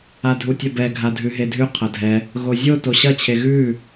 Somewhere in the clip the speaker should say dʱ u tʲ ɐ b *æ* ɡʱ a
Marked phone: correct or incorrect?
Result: incorrect